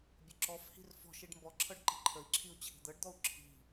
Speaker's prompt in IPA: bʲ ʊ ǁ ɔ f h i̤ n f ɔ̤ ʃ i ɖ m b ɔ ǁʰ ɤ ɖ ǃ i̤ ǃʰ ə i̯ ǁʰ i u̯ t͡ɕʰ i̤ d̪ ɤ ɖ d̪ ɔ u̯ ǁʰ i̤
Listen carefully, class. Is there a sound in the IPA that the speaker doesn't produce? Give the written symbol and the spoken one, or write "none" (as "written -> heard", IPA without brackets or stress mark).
n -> r